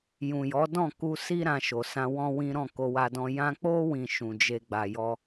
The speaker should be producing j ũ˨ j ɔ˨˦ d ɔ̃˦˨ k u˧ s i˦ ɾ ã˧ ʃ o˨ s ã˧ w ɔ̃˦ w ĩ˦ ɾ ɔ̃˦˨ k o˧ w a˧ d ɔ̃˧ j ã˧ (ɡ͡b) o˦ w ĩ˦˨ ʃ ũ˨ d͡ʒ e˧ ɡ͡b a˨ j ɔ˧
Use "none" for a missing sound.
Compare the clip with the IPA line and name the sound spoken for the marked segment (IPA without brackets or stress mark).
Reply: k͡p